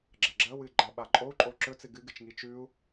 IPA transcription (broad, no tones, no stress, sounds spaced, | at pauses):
ɡ͡ǁ ɐ ɡ͡ǁ ɐ w ɨ ɡ͡ǃ a ɓ a ǃʼ o u̯ ǃʼ o ǁ ɵ t͡s ɨ ɡ ɨ ɡ ɨ t͡ʃ ŋ i t͡ʃ ʉ u̯